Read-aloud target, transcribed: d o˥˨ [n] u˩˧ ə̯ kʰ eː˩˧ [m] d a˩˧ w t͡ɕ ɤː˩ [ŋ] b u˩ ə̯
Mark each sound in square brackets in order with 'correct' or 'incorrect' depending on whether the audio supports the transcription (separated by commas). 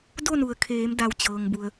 correct, correct, correct